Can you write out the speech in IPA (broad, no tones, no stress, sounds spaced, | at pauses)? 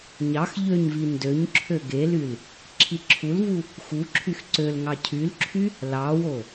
ɲ ɑ x ʎ ø ɲ v i n d ø ɲ ǁʰ ø ɡ e l y l | ǁʰ i ǁʰ u l v u | x u ǁʰ y x ǀ ø l ŋ ɑ cʰ y l ǁʰ y | l ɑ w o